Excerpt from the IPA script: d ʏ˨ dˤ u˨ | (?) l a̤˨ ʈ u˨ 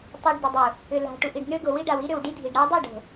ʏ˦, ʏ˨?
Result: ʏ˨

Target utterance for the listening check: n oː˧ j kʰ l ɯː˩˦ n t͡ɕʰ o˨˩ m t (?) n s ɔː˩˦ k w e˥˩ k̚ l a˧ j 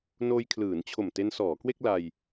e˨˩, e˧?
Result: e˧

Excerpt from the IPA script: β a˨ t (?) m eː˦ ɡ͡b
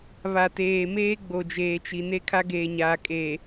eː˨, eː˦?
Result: eː˨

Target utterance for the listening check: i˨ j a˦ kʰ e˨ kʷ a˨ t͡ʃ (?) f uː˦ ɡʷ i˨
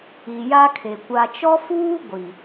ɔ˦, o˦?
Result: ɔ˦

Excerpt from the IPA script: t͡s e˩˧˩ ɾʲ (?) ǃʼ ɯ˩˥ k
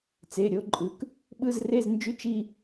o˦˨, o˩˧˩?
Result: o˦˨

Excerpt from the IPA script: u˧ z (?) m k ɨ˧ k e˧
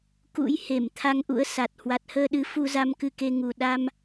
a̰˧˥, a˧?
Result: a˧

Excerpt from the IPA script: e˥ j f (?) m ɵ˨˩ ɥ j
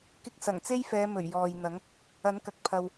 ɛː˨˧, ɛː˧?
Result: ɛː˨˧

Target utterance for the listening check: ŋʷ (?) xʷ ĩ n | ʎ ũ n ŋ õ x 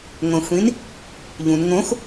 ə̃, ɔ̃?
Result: ə̃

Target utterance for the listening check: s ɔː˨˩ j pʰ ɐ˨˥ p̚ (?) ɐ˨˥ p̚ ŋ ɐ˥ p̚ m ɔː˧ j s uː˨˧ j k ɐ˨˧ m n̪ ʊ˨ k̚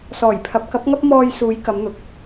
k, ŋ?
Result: k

